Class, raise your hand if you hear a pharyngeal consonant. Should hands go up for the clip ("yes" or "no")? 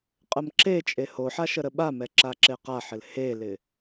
yes